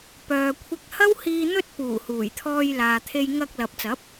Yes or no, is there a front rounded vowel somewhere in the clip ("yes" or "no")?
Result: yes